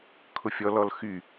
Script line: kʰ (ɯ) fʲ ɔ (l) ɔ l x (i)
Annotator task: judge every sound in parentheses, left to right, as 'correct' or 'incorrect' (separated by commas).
incorrect, correct, incorrect